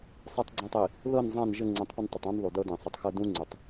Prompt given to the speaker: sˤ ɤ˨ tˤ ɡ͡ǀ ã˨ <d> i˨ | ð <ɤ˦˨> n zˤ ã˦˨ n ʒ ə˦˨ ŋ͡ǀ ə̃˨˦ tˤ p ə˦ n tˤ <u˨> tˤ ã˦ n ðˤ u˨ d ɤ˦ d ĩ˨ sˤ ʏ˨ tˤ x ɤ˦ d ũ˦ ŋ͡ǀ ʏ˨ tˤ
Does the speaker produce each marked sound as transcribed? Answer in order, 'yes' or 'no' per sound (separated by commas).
no, yes, no